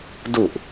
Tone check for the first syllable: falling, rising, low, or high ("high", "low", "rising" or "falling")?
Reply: low